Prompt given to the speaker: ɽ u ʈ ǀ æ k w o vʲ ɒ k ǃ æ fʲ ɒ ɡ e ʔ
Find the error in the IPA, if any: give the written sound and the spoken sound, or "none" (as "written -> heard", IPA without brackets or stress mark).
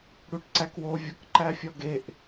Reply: none